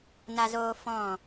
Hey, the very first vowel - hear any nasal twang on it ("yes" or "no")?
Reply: no